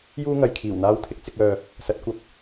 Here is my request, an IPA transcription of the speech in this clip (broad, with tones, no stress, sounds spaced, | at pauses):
j uː˥ ŋ ɐ˨ j kʰ iː˨˩ w n̪ aː˥ w t̪ʰ ɪ˥ k̚ t͡s ɪ˧ k̚ œː˨ | s ɐ˨˥ t̚ kʷ ɐ˧ p̚